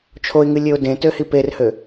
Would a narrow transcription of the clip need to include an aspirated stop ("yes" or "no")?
yes